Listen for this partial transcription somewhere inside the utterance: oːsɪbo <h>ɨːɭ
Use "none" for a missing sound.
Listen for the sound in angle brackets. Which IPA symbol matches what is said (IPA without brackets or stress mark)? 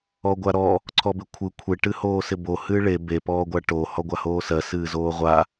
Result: h